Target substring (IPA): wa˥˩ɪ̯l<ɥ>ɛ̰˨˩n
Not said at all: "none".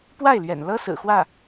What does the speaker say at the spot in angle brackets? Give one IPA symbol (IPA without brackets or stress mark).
ɥ